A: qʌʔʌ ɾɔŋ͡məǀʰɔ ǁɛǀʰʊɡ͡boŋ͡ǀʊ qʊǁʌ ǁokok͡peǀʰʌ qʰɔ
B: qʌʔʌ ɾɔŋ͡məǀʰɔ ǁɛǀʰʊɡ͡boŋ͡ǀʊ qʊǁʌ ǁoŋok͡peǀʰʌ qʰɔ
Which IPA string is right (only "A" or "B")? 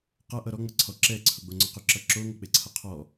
B